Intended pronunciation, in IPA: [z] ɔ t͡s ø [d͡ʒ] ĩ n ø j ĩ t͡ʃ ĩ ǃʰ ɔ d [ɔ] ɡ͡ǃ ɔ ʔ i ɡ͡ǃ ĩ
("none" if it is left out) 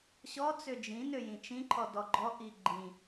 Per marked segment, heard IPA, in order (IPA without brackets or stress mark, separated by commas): ɕ, d͡ʒ, ɔ